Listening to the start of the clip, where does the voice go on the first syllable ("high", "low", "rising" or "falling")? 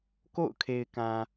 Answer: falling